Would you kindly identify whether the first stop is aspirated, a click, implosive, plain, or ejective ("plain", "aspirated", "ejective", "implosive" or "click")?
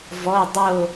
plain